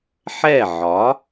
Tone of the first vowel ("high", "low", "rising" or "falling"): falling